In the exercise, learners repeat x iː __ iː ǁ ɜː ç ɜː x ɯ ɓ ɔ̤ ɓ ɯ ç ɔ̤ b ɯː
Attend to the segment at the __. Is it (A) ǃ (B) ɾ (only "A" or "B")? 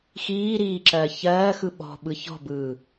B